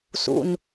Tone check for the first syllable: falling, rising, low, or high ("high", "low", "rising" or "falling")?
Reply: low